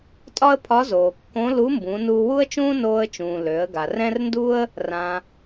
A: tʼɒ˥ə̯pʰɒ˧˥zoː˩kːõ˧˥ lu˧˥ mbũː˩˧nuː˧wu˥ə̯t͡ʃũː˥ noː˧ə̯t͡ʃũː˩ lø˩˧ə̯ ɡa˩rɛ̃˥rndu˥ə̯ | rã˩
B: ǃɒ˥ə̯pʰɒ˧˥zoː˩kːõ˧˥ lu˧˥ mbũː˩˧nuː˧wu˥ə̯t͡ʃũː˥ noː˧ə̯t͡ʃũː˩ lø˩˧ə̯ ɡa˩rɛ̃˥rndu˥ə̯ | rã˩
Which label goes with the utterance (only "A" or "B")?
A